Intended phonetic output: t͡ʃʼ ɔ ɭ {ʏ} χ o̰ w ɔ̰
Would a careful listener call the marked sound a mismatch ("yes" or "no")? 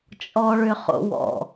no